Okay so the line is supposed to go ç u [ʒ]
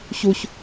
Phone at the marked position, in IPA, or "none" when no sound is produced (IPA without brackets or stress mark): ç